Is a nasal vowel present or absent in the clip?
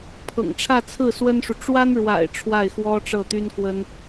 absent